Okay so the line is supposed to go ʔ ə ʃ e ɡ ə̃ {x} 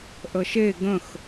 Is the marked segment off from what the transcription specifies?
no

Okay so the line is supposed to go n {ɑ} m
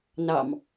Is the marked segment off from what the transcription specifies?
no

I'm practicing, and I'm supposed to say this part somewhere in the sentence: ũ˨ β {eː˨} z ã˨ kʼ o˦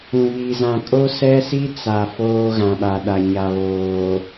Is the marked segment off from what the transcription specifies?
yes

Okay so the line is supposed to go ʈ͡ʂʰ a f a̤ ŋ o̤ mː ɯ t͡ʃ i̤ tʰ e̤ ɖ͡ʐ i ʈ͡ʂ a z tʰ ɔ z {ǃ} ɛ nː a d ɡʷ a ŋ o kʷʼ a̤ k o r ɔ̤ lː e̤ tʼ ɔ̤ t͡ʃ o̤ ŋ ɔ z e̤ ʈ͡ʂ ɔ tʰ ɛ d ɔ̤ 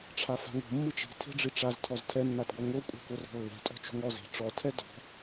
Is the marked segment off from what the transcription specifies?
yes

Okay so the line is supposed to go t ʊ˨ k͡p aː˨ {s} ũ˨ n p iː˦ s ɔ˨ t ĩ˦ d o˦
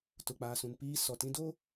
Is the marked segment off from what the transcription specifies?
no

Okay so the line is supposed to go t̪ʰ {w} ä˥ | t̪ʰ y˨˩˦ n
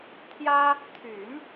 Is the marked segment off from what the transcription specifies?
yes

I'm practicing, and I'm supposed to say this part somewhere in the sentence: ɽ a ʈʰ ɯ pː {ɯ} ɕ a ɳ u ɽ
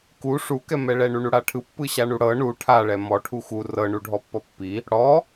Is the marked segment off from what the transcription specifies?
no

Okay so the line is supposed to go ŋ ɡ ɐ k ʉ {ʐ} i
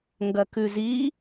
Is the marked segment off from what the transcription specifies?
yes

